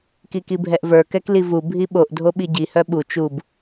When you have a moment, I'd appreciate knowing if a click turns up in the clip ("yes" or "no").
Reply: no